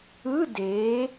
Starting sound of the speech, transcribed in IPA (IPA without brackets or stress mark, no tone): ɯ